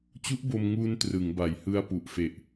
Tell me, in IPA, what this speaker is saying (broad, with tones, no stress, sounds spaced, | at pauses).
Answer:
t͡ɕ u˦˥ ʔ b o˧ m ŋ uː˧ n t r ɯ˩˦ ŋ b a˨˩ j h ɯ˧ a̯ p u˨˩ ʔ f e˨˩ ʔ